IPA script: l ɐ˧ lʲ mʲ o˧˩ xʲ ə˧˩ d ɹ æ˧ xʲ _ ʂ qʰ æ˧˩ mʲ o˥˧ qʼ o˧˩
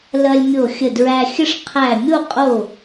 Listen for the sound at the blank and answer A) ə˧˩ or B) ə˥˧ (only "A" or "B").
B